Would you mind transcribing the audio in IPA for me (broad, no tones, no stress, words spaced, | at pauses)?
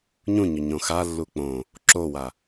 ɲũɲɵ ɲõxalːu k͡põ | ǁowa